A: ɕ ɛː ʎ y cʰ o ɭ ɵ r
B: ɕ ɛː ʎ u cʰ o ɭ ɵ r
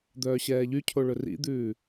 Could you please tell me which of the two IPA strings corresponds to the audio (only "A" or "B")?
A